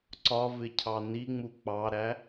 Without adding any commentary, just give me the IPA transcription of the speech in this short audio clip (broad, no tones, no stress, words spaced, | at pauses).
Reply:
ǀɒvɪcʰɑ niŋ͡mu k͡pɑɾæ